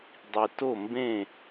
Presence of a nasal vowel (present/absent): present